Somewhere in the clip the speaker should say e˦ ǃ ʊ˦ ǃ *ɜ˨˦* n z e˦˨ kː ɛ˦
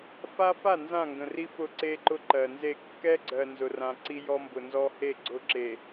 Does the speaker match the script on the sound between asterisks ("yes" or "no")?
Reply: no